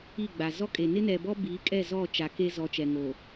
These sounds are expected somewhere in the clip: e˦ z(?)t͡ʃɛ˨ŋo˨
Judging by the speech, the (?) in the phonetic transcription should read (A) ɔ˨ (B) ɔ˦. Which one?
A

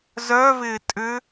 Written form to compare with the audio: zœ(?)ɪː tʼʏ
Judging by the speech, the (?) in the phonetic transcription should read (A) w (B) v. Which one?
B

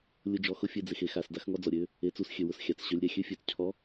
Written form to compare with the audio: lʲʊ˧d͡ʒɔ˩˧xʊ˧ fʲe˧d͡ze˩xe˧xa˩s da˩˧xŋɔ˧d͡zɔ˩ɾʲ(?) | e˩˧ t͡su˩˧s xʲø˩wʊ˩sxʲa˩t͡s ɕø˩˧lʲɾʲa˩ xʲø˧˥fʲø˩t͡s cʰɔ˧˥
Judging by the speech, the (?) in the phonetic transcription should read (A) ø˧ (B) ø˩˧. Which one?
B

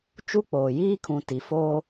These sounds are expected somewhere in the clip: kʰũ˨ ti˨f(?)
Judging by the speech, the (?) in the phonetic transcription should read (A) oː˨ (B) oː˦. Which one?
B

